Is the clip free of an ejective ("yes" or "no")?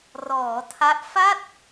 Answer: yes